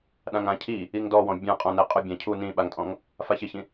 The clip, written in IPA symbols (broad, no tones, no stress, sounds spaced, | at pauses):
ɗ ã ŋ ã cʰ i | i ŋ d ɔ w ɔ̃ bʲ ã qʼ ɔ̃ n ɛ qʼ ʊ bʲ ã cʰ u n ĩ ɓ a ŋ tʼ ɔ̃ ŋ | f a ç ɪ ç ĩ